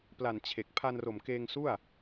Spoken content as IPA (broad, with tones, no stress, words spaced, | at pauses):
pla˨˩n t͡ɕʰe˨˩k̚ pʰa˧nro˨˩m keː˧ŋsu˥˩a̯